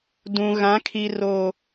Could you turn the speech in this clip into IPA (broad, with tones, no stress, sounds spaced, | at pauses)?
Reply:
d ũ˨ ɣ ã˨˦ kʰ i˨ r o˨